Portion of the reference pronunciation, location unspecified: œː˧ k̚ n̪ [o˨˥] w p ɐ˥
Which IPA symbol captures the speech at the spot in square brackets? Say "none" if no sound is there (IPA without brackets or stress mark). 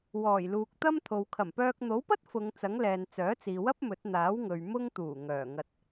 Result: o˨˥